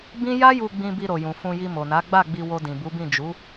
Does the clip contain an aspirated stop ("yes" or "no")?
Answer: no